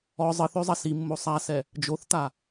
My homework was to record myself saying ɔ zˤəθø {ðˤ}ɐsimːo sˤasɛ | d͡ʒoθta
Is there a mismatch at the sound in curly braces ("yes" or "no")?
yes